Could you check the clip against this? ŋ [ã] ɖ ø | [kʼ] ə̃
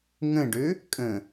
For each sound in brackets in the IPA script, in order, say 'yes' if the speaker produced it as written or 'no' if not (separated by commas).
no, yes